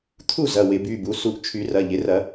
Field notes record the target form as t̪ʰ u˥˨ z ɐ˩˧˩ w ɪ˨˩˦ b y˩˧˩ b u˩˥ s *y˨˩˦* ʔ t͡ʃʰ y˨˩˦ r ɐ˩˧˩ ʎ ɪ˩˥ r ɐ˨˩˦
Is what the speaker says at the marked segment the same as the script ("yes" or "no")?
no